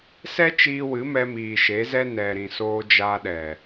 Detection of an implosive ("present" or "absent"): present